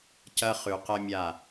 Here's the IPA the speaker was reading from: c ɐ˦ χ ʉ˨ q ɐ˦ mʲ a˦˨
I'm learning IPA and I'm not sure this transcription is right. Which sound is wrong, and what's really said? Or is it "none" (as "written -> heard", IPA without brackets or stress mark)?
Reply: none